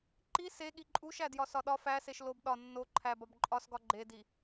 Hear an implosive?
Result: yes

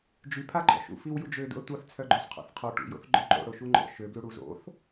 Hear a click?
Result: yes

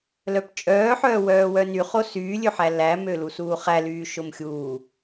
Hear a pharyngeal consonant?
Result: yes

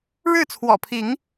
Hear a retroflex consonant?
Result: yes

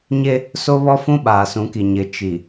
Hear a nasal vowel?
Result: yes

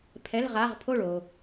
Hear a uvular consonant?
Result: yes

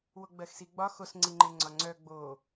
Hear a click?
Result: yes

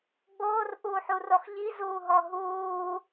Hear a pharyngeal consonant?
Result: yes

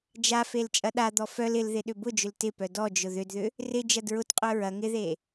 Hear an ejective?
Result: yes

